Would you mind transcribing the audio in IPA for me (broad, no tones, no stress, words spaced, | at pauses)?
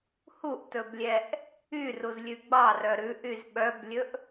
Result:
huʔtɵblʲɛʔ | yruzlʲʉ ɡ͡bɑrœ ɾʉʔyz ɓœblʲɵʔ